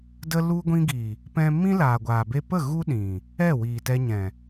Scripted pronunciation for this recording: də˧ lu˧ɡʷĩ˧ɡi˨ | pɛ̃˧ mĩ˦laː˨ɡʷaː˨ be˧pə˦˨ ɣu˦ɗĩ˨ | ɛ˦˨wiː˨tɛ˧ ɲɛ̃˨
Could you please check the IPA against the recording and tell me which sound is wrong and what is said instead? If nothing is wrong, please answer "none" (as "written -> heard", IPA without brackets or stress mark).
none